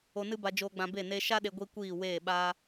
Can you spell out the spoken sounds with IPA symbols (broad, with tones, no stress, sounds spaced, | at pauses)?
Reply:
o˧ n ɨ˦ b a˧ d͡ʒ oː˧ ɡ͡b ã˧ b e˦˨ n eː˧ ʃ a˦ ɗ e˧ ɡʷ i˦ kʷ iː˦˨ w eː˦˨ ɓ a˦